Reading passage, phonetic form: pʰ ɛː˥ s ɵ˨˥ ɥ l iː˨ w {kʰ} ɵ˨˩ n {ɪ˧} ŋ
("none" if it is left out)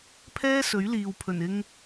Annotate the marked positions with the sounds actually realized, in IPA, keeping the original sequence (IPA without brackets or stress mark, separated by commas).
pʰ, ɪ˧